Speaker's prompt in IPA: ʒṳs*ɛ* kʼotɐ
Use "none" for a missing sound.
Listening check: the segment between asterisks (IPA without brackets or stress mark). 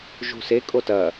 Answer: e